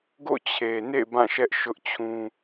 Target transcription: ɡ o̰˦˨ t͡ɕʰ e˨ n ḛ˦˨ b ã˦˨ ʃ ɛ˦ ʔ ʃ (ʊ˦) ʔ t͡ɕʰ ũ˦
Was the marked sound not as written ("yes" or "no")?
no